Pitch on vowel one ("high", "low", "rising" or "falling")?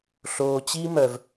low